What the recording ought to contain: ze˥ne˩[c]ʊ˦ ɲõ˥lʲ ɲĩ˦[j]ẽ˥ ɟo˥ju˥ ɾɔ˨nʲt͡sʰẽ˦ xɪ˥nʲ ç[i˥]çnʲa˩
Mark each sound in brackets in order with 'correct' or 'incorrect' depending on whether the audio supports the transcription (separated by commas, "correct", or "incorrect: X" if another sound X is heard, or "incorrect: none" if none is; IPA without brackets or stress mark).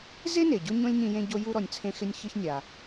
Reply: incorrect: ɟ, correct, incorrect: ɪ˥